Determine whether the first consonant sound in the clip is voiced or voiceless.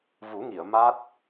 voiced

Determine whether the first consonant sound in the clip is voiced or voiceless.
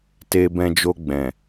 voiceless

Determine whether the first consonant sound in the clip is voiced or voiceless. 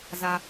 voiced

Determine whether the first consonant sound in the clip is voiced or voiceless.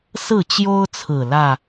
voiceless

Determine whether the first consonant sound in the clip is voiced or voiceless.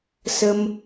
voiceless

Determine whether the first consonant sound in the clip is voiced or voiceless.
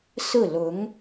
voiceless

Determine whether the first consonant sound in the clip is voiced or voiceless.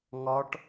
voiced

